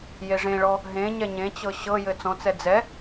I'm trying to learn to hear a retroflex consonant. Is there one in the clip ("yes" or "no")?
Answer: yes